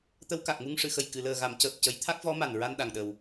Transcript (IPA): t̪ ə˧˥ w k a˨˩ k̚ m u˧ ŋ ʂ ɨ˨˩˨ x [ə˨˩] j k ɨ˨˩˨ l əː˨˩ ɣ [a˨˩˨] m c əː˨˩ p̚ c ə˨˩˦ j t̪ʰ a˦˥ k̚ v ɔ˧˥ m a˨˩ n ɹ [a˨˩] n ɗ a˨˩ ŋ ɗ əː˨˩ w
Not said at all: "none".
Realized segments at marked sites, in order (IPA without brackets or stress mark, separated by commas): ə˨˩, a˨˩˨, a˧